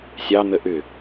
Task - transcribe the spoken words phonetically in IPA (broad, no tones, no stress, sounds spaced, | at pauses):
sʲ ɑ n̪ ə ʔ ʏ